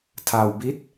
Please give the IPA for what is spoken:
tʰa˧wbi˦˥t̚

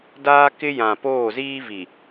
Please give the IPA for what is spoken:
daː˦kɪ˦jã˨ poː˦˨ziː˦vi˨

